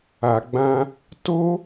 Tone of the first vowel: low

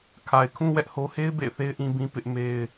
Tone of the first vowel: low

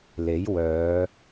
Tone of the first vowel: rising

